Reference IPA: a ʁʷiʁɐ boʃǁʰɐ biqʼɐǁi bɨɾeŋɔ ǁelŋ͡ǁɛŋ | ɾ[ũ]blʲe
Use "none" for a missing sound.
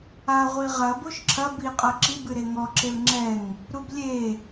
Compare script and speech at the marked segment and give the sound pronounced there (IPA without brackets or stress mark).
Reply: u